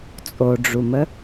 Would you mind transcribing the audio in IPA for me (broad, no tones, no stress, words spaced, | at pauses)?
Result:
t͡sʼoɖ͡ʐumə